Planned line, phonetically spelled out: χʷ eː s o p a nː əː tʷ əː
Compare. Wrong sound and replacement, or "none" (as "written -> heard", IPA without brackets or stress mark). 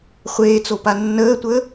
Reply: s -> t͡s